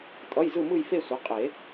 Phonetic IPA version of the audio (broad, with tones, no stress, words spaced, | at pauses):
tʼʌ˧˥˧jzɯ˥˧mɯ˥˧jfe˥˧ sʷʌ˩˥ qʼe˨˩˦